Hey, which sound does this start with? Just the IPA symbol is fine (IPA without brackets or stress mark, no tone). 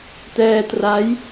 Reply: t